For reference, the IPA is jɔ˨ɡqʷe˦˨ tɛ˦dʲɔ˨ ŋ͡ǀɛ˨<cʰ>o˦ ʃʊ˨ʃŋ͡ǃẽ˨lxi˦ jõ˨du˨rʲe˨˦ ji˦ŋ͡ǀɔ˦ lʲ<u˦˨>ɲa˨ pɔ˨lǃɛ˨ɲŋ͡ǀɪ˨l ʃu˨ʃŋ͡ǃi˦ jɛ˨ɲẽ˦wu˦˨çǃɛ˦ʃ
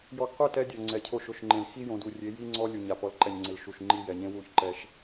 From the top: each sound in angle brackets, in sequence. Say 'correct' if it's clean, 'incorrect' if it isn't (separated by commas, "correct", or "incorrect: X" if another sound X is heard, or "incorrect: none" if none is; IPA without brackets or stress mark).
correct, incorrect: u˨